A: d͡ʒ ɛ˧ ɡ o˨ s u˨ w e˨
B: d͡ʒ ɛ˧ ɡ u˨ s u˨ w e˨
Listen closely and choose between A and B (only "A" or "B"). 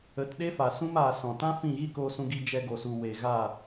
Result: A